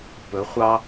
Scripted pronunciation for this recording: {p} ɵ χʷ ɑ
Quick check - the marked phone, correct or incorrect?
correct